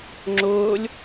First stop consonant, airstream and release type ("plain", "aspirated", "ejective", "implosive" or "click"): click